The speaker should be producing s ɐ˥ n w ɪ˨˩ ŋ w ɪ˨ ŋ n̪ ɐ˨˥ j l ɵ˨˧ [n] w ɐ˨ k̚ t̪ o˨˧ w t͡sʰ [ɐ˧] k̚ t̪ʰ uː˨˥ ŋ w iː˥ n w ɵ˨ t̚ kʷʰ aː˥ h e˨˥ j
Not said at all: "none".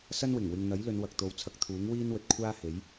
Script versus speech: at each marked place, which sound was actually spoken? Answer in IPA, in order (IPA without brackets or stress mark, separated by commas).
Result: n, ɐ˧